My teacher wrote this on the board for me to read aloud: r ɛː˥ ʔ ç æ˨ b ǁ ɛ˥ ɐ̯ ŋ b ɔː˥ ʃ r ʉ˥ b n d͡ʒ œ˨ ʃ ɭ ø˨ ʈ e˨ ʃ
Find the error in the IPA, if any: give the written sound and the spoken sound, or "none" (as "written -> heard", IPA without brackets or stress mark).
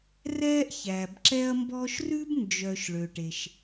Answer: ŋ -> m